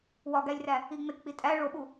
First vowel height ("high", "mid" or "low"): low